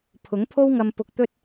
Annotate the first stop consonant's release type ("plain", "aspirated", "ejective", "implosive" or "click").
aspirated